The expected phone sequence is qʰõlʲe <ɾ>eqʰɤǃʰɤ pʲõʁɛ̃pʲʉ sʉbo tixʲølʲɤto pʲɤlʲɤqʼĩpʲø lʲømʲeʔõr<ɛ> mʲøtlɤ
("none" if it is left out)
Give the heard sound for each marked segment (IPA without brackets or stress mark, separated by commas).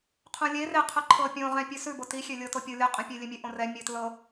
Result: r, ɛ